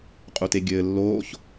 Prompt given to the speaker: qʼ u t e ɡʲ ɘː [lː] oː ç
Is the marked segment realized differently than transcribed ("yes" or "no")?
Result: no